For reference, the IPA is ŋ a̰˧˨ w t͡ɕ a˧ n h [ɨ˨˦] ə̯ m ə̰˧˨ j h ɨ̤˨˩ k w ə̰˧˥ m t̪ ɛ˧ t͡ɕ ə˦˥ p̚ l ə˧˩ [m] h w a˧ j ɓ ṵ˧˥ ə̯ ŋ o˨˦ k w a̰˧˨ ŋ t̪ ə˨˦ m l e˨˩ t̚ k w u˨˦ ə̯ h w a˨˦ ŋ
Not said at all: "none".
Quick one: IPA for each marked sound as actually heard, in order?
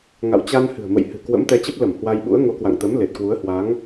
ɨ̤˨˩, m

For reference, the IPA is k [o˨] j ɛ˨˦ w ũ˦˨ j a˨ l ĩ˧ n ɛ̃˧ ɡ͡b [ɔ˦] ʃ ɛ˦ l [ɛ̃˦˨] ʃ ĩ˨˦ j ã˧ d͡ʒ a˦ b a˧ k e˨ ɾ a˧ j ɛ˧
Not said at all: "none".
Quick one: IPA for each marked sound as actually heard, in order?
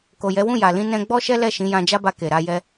o˨, ɔ˦, ɛ˦˨

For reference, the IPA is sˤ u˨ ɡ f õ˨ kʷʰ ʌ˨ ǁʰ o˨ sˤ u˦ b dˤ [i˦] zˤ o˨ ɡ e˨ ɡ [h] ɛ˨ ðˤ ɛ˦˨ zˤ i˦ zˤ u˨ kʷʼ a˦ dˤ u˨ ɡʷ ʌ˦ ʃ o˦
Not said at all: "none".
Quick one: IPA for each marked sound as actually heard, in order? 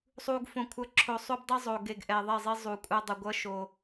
i˦, ʔ

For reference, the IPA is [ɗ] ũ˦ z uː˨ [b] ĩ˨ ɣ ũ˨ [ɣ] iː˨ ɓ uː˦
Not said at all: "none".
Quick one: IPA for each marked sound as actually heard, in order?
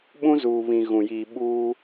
ɓ, β, j

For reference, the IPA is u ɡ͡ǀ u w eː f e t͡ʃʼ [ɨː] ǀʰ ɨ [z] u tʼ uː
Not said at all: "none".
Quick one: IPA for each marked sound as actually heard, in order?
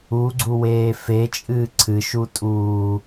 ɨː, ʃ

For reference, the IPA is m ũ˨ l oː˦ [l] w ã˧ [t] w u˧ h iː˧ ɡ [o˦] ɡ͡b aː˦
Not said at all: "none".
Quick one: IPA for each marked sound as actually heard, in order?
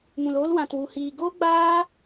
l, t, o˦

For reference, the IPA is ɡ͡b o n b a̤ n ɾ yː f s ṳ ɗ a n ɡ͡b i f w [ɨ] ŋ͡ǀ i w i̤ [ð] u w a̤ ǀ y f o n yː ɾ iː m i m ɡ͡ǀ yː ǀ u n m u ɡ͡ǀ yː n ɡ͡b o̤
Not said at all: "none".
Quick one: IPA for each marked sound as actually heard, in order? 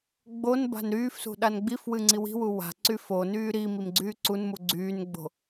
ɨ, w

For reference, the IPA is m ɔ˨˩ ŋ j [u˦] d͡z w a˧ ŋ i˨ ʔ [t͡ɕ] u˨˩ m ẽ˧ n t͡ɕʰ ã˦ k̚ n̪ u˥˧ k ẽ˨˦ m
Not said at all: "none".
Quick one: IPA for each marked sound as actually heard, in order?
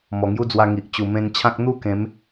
u˦, t͡ɕ

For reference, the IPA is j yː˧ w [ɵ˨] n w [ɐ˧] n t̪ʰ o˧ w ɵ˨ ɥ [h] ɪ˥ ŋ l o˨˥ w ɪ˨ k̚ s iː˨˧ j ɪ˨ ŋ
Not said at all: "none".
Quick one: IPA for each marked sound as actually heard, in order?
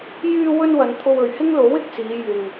ɵ˧, ɐ˨˧, h

